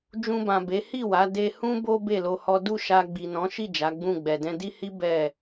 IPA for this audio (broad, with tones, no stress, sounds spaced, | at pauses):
d͡ʒ ũ˧ b ã˨ b e˨˦ h i˦˨ w a˨˦ d e˧ h ũ˦ b o˦ b e˦˨ l o˧ h ɔ˦ d u˦˨ ʃ a˧ ɡ͡b i˨ n ɔ̃˨˦ ʃ i˦˨ d͡ʒ a˨˦ ɡ͡b ũ˦˨ ɡ͡b ɛ˨ d ɛ̃˧ d i˦ h i˦ b ɛ˦˨